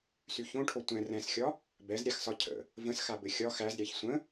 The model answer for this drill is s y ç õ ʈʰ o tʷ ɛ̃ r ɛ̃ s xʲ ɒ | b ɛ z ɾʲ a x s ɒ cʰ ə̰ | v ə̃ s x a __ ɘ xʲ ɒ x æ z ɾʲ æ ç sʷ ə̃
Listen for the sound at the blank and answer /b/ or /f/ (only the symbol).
b